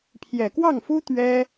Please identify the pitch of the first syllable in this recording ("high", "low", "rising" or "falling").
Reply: low